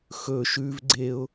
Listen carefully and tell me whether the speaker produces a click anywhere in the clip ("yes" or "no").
yes